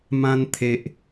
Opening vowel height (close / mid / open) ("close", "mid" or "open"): open